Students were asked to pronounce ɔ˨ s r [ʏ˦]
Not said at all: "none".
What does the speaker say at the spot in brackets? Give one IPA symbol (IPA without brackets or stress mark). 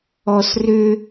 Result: ʏ˦